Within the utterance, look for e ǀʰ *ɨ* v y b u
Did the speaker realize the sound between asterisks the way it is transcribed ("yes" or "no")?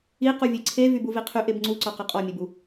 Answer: no